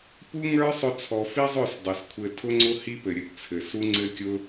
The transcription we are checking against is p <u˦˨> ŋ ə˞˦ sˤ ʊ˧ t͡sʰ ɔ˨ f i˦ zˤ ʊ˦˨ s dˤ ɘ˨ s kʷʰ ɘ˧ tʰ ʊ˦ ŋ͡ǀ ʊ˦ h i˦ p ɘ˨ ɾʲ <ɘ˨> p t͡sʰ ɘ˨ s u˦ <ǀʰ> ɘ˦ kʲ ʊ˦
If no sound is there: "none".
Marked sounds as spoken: u˦, ɘ˨, ŋ͡ǀ

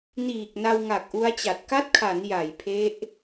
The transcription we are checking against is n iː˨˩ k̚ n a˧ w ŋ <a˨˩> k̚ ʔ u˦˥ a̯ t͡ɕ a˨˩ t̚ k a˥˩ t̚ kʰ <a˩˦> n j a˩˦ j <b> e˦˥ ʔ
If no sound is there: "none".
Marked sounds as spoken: a˨˩, a˩˦, pʰ

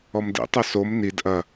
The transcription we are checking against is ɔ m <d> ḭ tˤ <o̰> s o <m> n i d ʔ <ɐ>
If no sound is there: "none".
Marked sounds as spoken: d, o, m, ɐ

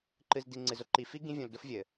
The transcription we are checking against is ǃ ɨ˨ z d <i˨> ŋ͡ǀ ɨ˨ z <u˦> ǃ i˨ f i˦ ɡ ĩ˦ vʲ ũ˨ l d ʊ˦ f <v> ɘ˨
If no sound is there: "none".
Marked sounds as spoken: i˨, ʊ˦, vʲ

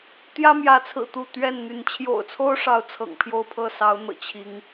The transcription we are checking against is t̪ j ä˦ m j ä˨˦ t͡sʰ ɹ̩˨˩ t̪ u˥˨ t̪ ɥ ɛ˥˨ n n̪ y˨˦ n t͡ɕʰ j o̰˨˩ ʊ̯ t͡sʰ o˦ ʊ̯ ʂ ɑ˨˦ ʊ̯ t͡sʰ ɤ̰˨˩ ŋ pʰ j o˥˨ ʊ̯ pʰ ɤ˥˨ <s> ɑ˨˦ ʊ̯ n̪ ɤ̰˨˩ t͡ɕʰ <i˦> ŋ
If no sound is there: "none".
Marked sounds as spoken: s, i˨˦

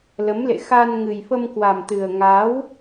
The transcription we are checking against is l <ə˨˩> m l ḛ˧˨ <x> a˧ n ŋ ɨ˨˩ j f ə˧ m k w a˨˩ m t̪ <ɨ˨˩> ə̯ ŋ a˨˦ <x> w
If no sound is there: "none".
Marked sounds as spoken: ə˨˦, x, ɨ˨˩, none

